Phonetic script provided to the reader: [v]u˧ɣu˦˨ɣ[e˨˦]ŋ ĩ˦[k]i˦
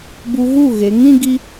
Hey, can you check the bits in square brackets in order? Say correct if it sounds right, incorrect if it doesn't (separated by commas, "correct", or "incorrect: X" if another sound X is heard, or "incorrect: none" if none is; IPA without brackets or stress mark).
incorrect: b, correct, incorrect: ɡ